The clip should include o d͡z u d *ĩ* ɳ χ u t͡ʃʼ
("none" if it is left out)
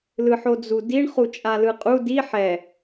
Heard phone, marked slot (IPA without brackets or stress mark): i